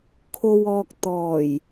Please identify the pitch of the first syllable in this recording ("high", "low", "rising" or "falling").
low